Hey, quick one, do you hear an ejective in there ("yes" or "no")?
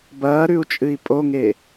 yes